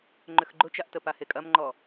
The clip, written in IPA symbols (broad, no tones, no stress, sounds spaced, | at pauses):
ŋ͡ǃ ʏ x ɡ͡ǃ ʊ t͡ʃ a ʔ t ə p a h e kʼ ɐ m ŋ͡ǃ ɔ